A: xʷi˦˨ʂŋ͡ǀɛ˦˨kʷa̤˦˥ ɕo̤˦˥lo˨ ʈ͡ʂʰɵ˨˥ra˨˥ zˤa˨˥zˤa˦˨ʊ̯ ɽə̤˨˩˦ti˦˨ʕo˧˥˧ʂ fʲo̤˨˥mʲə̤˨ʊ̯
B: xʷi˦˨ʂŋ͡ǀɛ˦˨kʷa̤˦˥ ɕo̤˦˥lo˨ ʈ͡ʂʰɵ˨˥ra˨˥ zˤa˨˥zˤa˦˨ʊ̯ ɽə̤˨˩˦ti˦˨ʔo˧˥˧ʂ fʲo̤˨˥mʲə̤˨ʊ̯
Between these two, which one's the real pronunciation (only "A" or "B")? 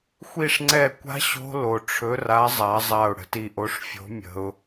B